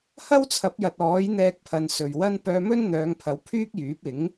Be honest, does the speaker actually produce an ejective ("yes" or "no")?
no